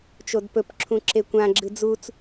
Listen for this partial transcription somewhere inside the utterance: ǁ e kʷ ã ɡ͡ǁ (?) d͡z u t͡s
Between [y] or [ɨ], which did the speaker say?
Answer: ɨ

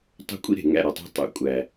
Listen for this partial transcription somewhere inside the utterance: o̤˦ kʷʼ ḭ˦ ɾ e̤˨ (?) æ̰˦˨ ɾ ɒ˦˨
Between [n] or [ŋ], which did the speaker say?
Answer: ŋ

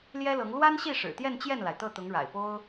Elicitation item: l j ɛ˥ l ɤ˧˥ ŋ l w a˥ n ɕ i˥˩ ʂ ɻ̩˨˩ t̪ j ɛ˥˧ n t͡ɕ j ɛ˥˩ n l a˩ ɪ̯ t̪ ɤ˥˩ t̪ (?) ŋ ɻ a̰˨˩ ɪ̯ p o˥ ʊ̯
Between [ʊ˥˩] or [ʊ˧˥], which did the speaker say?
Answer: ʊ˧˥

